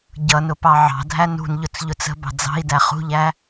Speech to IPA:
ɟ ʌ n ʊ p ɑ ʕ ɑ̤ dʱ æ n ṳ n ʎ ʊ t͡s ʎ ʊ t͡s ə̤ b ɑ̤ d͡z ɑ̤ i̯ d æ χ ṳ ʎ æ

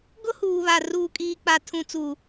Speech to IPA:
ɡ ʊ˦ h uː˨ β a˨ r uː˨ kʼ iː˨ k͡p a˨ tʰ ũ˨ t͡s u˨

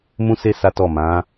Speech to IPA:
m ũ˦ s e˦ s a˦ t ɔ˦˨ m ã˨˦

